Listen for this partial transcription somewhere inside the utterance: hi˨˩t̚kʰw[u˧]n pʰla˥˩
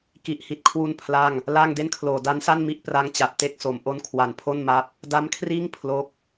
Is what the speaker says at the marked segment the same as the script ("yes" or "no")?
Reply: yes